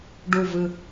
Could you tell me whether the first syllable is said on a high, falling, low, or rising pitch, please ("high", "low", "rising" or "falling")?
low